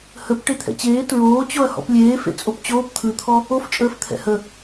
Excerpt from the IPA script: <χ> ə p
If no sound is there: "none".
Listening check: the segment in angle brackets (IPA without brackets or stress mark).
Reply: h